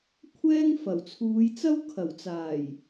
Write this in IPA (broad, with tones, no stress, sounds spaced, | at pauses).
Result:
kʷʰ ɛː˥ ŋ f ɐ˨˩ w t͡sʰ uː˨˧ j t͡s ɐ˥ w kʰ ɐ˨˩ w t͡s aː˨˩ j